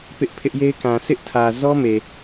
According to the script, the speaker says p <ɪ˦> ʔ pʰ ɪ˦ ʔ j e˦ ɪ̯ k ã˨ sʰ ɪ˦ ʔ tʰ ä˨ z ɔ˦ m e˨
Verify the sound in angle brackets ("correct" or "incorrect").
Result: correct